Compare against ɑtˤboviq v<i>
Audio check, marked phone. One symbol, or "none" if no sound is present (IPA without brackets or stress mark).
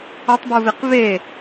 e